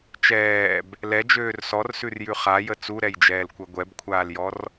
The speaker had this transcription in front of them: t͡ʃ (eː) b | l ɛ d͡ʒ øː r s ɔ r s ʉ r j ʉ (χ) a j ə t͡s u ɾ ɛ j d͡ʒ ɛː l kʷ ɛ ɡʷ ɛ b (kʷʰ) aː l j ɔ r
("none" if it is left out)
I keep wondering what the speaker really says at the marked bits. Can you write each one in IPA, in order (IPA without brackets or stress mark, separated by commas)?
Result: ɛː, χ, kʷʰ